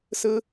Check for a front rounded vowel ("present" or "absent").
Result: absent